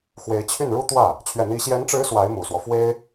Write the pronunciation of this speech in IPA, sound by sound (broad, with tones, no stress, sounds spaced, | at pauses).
x w e˧˥ ɪ̯ t͡ɕʰ y˥˩ n ɻ u˥ t̪ w ä˥˩ | t͡ɕʰ ɥ ɛ˥˩ n̪ i˥ ɕ j ɛ˧˥ n ʈ͡ʂ ɻ̩˧˥ s w a˧˥ ɪ̯ m u˨˩ s w ɔ˦ f w e˥ ɪ̯